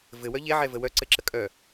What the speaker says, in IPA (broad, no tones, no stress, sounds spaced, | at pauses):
v ɘ w œ ʎ e ʕ ɛ v ə w œ ǀ ɘ ǁ ə kʼ œ